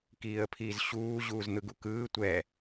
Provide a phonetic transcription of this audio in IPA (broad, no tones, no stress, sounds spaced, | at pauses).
k iː ə̯ pʰ iː z ɕ uː ʑ uː z n̪ ɯ ɡ u k ɯː tʷ ɛ